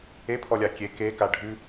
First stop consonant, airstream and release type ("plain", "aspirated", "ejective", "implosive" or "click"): aspirated